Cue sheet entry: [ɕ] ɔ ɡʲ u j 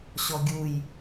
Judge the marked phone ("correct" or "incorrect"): correct